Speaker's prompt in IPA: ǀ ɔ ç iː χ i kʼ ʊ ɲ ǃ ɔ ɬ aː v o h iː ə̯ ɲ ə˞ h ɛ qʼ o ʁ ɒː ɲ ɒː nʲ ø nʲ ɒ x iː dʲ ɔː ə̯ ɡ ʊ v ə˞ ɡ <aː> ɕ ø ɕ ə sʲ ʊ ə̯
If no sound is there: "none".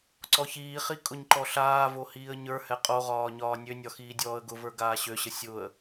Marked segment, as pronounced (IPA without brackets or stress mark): aː